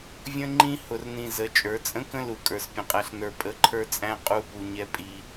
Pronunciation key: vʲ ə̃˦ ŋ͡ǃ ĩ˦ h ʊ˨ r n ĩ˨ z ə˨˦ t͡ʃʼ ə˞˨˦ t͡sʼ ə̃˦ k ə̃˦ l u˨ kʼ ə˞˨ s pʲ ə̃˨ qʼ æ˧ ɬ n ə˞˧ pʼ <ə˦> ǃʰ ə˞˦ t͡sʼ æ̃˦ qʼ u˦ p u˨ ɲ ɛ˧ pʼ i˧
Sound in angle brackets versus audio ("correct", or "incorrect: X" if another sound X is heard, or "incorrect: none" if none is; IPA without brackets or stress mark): incorrect: ə˧